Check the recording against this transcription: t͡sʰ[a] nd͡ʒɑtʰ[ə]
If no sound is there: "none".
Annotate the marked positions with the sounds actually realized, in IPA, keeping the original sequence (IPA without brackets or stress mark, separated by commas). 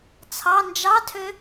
ɑ, ø